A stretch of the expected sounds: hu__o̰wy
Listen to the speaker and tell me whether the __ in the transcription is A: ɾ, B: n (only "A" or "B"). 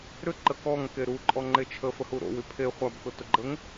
A